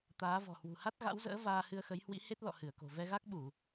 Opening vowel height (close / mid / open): open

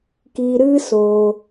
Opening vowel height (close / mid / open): close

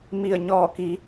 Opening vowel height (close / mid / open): close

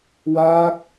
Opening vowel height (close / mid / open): open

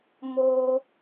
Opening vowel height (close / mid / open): mid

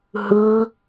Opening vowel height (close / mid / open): close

